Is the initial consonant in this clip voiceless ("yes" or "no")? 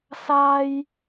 yes